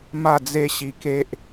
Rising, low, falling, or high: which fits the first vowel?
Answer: falling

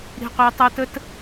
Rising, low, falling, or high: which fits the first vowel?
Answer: low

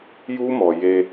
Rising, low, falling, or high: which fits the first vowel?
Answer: high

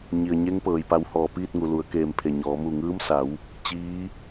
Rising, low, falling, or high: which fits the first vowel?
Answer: low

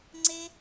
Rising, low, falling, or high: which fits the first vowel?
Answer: high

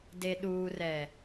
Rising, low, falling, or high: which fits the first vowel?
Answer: low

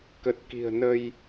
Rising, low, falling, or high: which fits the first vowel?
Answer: low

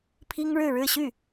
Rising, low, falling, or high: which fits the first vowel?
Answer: high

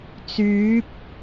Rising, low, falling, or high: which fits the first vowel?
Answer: rising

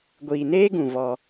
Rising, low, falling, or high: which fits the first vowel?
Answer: low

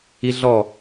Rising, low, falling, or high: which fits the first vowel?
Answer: high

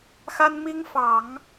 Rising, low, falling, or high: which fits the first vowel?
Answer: high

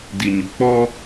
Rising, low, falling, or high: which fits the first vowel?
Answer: low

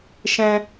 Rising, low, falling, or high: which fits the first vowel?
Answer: high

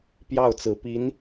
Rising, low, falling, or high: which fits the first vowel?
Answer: falling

